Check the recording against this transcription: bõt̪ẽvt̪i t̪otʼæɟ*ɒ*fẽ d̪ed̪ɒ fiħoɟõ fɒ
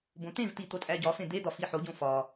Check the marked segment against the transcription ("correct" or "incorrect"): correct